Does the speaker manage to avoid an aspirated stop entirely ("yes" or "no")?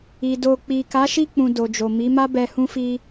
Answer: yes